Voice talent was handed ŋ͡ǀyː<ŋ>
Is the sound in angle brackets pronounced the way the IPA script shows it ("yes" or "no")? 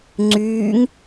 yes